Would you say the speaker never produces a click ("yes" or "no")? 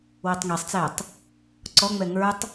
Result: no